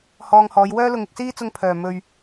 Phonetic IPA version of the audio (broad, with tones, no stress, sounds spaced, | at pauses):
h ɔː˧ ŋ h ɔː˨˧ j w œː˥ l ʊ˧ ŋ ɪ˧ k̚ s iː˥ t͡s ʊ˥ ŋ pʰ œː˨˩ m ɵ˨ ɥ